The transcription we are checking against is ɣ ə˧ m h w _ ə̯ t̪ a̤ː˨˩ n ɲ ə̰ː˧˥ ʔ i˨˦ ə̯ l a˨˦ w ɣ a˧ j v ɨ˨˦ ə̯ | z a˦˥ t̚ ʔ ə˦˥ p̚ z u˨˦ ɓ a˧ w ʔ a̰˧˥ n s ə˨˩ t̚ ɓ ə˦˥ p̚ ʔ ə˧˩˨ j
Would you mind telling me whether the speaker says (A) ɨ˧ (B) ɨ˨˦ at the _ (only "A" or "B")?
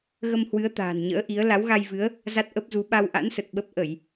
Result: B